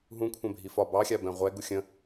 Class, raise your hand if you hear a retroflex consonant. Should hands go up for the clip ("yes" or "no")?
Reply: no